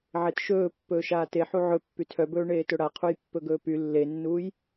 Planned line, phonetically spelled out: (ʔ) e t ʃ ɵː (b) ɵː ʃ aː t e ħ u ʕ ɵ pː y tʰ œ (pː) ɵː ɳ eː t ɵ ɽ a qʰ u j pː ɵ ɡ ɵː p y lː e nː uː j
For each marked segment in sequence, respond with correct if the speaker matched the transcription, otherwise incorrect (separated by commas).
incorrect, incorrect, incorrect